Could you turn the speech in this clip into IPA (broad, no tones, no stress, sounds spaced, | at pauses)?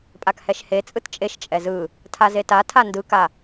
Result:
pʼ a k h ɛ ʃ h e t͡sʼ ɯ t t͡ʃʼ e ʃ t͡ʃʼ ɛ z ɯ | tʰ a z e t a tʰ a n d ɯ k a